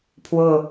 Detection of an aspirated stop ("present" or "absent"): present